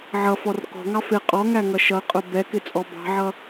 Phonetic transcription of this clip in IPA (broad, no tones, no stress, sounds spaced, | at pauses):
ʕ ʌ f ɔ r k ɔ̤ ŋ ɑ f ɪ qʼ ɔ ŋ æ ŋ ʌ ʃ ʌ qʼ ʊ b ɛ k ɪ t͡sʼ ɔ b ɑ̤ ʕ ʌ